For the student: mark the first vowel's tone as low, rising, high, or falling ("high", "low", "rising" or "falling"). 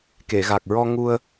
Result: low